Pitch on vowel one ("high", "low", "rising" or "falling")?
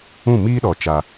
falling